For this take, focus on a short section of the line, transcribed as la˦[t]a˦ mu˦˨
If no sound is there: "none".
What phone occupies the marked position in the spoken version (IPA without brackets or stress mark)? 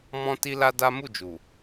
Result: d